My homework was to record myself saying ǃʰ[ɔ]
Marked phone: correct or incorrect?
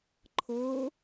incorrect